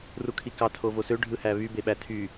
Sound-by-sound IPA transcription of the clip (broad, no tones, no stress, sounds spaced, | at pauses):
r u kʰ i k ɑ tʰ o v o s ø ɖʱ ɯ h æ β y b e ɓ æ tʰ y